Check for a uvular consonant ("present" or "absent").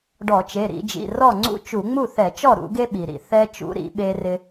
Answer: absent